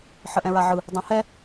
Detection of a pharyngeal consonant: present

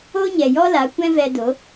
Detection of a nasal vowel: present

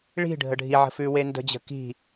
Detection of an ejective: absent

